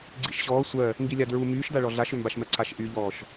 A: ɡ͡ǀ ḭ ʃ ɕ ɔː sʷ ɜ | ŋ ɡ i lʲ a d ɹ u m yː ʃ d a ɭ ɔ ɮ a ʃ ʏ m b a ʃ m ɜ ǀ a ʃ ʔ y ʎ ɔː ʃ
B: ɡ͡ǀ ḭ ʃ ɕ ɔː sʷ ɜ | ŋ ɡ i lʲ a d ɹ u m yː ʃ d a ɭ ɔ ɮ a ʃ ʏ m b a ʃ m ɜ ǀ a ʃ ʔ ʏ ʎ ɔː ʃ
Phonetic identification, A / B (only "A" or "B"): A